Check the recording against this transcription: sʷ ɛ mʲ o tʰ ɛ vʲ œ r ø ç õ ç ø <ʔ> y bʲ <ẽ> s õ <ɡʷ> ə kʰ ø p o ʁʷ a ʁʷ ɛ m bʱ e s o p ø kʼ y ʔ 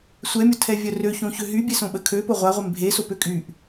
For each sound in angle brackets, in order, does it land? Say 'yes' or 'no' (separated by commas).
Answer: no, no, no